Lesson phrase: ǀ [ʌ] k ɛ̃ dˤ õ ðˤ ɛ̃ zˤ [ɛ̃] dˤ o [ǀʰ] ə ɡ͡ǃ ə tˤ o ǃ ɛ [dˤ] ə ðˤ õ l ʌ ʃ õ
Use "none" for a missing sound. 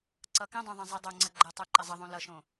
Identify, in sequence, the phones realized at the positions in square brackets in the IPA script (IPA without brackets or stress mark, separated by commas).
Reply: ʌ, ɛ, ŋ͡ǀ, zˤ